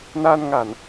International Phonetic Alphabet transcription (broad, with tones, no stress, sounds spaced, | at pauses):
n aː˧ n ŋ a˧˩˨ n